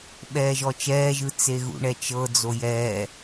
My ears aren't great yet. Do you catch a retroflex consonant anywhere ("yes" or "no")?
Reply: yes